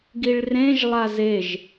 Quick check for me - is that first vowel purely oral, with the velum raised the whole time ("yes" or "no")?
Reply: yes